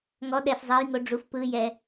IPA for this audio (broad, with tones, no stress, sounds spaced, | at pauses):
ŋ ɔ˧˥ ɗ ɛ˧ f zˤ ɤ˧˥ j ŋ o˧˥ ɖ͡ʐ u˧ f p ɯ˧˥ j ɛ˧